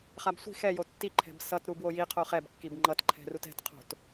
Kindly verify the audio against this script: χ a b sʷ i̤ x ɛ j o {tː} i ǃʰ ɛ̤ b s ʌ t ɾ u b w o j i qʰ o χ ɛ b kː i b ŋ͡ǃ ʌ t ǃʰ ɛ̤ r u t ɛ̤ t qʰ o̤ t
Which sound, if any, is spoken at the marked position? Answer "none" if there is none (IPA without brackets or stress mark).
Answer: tː